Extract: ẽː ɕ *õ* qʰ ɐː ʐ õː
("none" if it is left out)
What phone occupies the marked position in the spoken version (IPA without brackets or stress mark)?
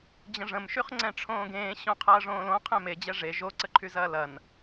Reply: õ